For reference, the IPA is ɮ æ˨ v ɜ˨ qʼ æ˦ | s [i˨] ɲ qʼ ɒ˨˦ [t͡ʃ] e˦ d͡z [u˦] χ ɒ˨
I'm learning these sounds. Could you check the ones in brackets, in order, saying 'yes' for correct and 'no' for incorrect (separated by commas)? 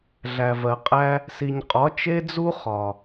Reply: yes, yes, yes